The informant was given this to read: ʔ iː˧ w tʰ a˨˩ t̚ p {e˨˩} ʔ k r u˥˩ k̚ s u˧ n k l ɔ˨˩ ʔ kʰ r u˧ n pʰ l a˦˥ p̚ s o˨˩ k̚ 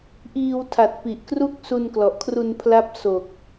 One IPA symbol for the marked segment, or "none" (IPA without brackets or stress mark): i˨˩